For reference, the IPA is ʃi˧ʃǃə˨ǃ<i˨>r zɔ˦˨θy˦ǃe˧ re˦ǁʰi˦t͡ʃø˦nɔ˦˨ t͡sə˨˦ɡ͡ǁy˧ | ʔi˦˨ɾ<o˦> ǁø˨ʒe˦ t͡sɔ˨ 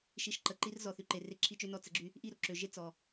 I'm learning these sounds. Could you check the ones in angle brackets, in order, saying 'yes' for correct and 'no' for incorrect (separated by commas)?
no, no